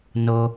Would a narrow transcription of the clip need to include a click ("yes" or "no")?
no